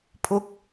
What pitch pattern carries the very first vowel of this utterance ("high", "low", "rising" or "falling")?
high